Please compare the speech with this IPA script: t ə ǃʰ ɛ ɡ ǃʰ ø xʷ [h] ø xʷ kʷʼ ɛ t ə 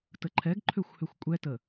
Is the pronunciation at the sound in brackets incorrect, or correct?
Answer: correct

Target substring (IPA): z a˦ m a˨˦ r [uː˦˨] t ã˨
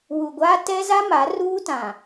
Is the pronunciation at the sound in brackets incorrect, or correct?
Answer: incorrect: uː˦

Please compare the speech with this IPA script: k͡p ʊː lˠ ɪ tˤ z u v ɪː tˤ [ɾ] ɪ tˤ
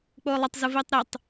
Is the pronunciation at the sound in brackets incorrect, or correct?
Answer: correct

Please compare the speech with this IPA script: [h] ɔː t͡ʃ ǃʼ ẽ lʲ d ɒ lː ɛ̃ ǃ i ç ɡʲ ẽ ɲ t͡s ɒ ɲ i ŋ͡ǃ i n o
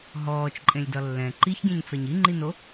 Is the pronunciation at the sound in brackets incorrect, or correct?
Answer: incorrect: ɦ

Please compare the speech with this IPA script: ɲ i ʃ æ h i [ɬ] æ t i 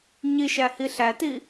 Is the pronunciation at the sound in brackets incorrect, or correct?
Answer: correct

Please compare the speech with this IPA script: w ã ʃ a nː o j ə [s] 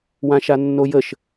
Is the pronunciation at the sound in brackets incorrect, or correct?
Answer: incorrect: ʃ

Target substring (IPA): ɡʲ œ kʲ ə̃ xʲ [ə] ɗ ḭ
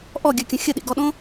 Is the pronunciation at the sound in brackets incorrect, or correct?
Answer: correct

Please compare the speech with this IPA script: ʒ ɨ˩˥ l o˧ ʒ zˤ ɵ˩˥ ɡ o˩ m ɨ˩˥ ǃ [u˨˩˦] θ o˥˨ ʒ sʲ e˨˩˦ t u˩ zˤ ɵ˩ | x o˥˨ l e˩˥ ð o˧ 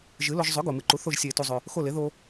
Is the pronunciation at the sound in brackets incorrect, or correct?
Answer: incorrect: u˩˥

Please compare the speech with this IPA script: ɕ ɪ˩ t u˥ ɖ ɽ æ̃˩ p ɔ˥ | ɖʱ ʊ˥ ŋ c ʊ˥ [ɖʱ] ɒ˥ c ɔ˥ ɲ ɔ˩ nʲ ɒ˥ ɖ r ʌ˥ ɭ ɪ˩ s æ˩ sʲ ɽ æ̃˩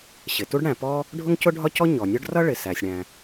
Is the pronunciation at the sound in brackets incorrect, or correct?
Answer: correct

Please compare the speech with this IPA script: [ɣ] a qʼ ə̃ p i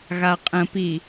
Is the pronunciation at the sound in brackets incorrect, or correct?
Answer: correct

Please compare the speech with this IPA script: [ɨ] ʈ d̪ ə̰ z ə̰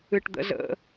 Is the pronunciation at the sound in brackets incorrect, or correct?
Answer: correct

